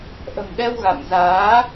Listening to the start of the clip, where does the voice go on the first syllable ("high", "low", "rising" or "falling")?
low